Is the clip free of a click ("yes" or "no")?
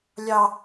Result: yes